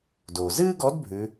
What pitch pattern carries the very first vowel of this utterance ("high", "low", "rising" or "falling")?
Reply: low